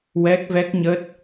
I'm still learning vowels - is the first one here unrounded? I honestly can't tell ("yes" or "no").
yes